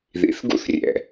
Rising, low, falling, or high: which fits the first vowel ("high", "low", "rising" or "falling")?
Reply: rising